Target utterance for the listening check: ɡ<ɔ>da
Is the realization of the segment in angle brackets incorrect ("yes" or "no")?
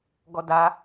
no